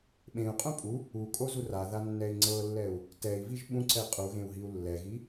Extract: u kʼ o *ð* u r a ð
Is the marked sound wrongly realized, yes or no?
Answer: yes